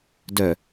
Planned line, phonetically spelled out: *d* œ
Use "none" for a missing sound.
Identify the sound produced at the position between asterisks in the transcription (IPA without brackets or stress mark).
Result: d